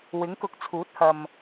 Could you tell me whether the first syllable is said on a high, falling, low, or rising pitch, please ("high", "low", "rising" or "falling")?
rising